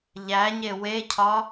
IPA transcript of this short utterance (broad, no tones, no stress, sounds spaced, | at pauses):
ʎ æ ɲ e w e cʰ ɒ